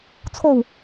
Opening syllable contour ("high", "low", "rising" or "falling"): low